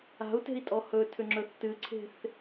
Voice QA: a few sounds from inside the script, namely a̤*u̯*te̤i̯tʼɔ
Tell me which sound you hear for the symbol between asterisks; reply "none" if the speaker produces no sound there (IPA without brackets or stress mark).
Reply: u̯